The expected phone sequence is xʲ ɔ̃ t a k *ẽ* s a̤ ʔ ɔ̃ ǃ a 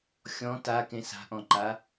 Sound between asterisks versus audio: correct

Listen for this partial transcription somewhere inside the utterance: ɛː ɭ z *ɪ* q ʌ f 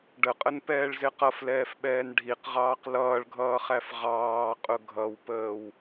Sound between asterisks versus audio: correct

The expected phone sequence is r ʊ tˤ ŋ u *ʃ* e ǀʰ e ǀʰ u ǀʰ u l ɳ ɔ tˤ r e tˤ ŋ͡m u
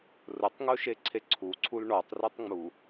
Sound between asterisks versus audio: correct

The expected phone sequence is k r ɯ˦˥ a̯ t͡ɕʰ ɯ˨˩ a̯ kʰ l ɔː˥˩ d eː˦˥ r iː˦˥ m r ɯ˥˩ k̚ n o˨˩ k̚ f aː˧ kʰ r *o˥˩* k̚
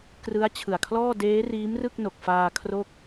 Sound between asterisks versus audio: correct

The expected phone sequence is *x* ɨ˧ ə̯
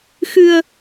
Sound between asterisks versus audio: correct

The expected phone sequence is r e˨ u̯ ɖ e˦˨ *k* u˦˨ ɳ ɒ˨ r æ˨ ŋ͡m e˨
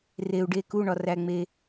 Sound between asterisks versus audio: correct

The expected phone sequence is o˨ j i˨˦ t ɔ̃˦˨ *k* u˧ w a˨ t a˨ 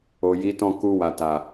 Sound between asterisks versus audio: correct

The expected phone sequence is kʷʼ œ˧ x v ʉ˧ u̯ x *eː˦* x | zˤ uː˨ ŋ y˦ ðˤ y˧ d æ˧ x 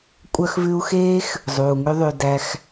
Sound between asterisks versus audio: correct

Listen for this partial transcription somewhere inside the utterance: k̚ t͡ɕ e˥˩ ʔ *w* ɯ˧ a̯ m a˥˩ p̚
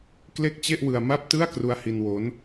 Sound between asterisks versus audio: correct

